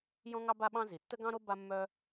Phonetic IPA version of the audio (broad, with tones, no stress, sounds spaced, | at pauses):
j ɔ̃˥ ŋ ɑ˥ b a˥ ɓ ɑ̃˥ z i˩ tː ə˥ ɡ ɑ̃˥ ɾ o˥ b a˥ mː œ˥